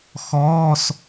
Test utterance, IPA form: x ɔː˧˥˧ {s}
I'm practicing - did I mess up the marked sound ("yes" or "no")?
no